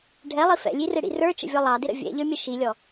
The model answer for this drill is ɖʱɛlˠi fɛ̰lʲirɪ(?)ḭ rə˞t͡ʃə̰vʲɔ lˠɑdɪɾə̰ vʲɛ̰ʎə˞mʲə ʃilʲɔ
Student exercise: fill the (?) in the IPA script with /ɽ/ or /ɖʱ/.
ɽ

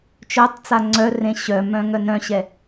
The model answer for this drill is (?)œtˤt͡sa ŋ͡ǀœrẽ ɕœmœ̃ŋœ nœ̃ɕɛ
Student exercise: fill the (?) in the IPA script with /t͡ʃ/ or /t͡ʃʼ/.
t͡ʃ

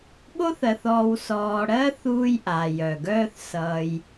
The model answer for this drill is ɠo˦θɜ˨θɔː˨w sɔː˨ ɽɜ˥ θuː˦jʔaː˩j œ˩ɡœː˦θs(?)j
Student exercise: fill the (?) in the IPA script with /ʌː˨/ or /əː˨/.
ʌː˨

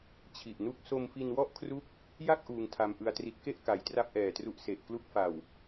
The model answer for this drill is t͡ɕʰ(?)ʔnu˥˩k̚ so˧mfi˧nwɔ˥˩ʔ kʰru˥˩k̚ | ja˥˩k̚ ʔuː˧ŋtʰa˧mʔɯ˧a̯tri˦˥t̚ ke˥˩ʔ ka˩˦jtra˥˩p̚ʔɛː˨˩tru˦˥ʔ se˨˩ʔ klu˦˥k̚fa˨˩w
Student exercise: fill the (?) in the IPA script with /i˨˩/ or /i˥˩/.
i˨˩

